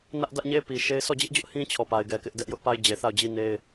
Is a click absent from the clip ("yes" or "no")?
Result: yes